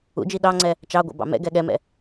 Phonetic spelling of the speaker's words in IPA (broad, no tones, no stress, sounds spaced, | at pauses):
ṵ d͡ʒ i ɗ ɑ ŋ͡ǀ ɛ | t͡ʃ ɑ ɡʷ ɛ̰ b ɑ̰ m ɛ̰ ɡ ɛ ɠ ɛ m ɛ̰